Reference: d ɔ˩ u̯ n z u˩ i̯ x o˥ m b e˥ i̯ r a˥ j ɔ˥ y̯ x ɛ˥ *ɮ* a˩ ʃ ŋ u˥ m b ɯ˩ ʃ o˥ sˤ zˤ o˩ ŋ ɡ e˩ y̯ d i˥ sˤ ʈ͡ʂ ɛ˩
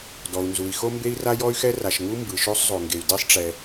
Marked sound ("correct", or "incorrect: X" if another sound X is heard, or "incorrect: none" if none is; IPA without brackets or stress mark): incorrect: r